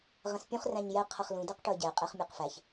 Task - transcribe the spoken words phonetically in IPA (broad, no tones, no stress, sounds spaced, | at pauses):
ʁ ə̃ s pʲ ũ χ r æ̃ ɲ j ɛ qʰ ʌ χ l ũ d ɜ q ʈ ʊ ə̯ ɟ ɛ qʼ ɛ χ mʲ ɜ q f æ ç